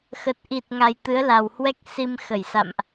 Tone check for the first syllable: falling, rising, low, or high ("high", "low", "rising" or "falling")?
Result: low